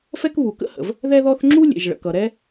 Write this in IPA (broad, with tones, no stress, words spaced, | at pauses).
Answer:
fɛ˥kβu˩kə̰˥hə̰˩v | ðɛ˥ðɔ˥θ ŋ͡ǁu˥ lʲḛ˩ʒɭə̰˩kʌ˩ ɾɛ˥